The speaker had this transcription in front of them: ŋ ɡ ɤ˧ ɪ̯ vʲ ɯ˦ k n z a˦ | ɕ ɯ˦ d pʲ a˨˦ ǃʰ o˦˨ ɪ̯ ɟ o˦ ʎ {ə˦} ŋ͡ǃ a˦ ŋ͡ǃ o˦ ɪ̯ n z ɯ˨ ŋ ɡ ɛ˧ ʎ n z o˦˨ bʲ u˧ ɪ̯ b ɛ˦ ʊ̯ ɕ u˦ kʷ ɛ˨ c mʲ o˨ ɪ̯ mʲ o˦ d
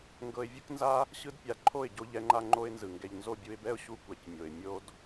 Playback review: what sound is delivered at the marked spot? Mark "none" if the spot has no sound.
ɛ˦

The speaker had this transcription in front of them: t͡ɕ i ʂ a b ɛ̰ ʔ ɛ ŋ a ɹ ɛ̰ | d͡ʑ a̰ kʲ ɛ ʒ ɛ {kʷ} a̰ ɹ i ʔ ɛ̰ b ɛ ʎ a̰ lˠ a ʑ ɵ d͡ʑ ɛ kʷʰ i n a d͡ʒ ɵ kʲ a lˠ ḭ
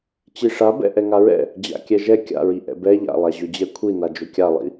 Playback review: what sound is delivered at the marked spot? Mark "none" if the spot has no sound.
kʲ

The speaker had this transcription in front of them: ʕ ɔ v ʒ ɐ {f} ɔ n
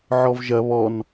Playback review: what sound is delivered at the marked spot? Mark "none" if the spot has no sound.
β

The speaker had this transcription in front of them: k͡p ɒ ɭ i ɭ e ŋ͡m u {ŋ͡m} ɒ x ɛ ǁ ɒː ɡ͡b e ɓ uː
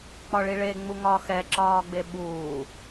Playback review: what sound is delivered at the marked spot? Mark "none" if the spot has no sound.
ŋ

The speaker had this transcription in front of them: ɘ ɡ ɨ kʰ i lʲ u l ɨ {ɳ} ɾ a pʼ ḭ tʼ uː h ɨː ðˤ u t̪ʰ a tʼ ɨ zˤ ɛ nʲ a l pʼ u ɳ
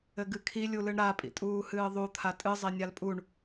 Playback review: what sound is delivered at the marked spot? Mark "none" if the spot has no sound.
ɳ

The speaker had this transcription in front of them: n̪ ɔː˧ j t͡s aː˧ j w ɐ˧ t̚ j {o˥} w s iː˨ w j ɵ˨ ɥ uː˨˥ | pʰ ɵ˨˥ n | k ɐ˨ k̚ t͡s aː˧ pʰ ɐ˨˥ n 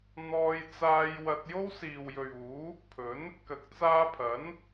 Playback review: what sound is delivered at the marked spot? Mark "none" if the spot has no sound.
o˥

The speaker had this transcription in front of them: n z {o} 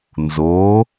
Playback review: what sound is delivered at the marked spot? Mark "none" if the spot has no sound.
o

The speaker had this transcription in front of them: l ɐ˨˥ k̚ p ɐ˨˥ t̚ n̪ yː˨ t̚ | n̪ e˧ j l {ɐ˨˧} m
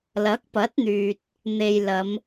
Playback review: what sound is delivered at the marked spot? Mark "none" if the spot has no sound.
ɐ˨˧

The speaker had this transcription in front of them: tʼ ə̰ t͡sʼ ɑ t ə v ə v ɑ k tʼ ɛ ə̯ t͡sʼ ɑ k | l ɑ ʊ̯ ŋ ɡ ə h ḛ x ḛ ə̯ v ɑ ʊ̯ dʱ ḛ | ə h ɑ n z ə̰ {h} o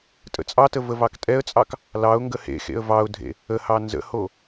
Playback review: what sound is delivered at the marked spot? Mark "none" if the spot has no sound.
h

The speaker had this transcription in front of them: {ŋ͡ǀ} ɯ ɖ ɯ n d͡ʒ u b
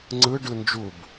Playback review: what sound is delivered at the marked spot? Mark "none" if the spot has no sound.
ŋ͡ǀ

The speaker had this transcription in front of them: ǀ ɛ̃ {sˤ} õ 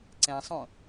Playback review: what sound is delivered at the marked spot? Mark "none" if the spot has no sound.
sˤ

